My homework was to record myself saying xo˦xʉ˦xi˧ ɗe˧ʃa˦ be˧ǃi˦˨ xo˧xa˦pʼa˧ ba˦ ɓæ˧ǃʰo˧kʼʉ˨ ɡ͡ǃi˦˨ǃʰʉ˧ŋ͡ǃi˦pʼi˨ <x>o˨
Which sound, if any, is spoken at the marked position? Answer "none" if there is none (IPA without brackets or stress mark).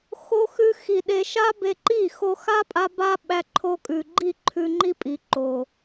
ǃ